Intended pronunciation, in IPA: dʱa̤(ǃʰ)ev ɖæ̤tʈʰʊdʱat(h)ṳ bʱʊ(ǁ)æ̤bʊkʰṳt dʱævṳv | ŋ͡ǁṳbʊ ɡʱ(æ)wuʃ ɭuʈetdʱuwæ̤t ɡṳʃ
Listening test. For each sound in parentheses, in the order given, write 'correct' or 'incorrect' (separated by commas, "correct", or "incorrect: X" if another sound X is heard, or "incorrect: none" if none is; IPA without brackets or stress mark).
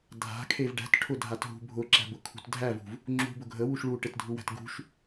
incorrect: kʰ, incorrect: ɦ, correct, incorrect: ə